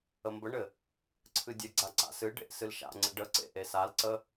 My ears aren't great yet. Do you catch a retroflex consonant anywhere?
yes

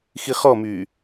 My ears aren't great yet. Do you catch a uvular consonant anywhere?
yes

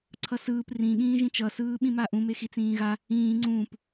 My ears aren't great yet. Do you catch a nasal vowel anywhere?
yes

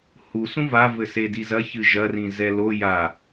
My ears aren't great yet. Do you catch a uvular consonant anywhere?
no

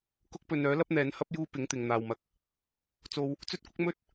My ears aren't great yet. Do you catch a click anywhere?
no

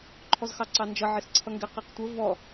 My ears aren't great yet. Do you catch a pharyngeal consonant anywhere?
yes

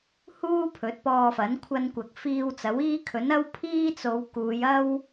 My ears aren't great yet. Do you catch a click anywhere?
no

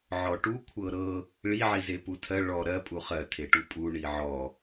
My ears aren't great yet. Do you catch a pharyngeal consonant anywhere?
yes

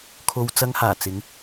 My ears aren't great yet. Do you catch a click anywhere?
no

